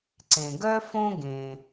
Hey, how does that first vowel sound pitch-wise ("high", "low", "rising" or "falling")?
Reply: low